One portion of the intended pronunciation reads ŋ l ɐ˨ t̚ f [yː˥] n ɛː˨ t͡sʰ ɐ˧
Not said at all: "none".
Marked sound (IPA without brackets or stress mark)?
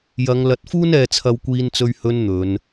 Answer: uː˥